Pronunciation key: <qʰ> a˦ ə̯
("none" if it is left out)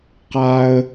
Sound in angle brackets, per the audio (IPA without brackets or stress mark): q